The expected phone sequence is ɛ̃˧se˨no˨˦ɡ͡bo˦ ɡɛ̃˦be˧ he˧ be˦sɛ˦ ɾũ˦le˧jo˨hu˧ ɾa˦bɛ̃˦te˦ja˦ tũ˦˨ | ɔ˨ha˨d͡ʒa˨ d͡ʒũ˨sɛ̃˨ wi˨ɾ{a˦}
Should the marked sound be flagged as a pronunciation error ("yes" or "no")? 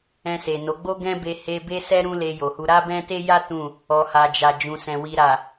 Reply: yes